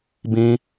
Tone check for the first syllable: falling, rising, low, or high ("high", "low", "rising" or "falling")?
high